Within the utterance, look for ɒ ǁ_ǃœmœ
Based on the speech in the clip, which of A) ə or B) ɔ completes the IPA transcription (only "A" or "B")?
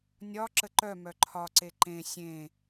A